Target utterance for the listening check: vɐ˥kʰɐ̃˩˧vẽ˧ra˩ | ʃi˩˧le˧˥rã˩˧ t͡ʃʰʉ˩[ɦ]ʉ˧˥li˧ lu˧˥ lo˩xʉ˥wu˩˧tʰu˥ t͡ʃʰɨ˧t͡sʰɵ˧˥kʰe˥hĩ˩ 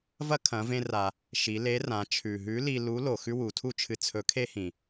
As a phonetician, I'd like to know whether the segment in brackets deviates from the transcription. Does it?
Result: no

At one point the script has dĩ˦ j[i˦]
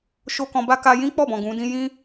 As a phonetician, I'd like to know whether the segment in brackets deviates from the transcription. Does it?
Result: yes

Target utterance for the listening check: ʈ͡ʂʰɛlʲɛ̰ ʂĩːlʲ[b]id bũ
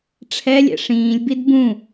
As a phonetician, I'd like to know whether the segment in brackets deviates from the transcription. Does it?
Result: no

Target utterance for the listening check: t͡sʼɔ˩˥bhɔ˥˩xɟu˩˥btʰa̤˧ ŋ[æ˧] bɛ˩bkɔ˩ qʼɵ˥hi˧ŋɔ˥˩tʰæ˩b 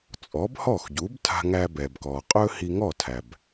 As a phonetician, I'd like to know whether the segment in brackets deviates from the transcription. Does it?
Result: no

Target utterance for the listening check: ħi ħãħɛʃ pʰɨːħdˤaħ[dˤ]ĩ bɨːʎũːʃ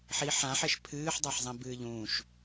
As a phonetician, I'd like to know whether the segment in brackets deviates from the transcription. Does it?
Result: yes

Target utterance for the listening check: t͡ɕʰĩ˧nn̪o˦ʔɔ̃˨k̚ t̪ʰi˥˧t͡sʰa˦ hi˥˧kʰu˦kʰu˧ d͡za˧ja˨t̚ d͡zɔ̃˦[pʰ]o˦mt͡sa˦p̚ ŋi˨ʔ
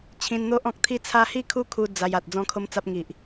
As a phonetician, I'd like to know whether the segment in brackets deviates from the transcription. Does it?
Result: yes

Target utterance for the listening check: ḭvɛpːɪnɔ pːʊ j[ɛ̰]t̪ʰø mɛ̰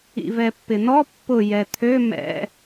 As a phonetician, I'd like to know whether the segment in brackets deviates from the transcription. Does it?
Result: yes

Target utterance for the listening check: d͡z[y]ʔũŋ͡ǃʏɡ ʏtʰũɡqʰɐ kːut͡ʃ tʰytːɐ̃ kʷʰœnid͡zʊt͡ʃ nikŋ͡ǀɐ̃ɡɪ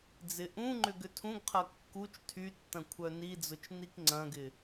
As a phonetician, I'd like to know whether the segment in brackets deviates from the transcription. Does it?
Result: yes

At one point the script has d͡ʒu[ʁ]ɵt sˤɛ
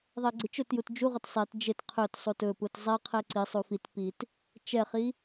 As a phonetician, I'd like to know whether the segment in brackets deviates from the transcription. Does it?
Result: no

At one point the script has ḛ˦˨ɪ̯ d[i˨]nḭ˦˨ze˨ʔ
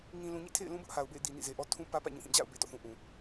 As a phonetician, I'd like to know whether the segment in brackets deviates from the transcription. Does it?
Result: no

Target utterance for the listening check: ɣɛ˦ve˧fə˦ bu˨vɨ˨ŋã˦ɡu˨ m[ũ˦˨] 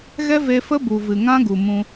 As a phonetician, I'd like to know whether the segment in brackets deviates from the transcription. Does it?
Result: yes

